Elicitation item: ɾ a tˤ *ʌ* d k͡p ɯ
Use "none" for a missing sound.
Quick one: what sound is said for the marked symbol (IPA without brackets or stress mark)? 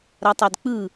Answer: a